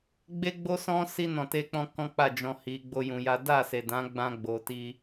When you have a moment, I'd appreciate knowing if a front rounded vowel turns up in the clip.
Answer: no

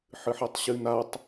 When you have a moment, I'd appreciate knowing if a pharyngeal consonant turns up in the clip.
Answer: yes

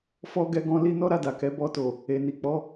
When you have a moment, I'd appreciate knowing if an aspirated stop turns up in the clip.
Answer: no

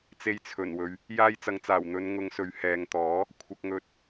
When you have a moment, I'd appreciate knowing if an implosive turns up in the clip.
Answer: no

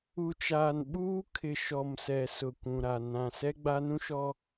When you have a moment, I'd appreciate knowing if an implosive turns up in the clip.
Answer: yes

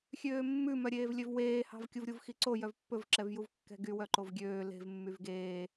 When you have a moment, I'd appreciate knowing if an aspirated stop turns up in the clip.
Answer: no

